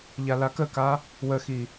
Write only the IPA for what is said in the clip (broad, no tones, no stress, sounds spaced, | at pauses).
ʎ a l a k ə k a | w ə x i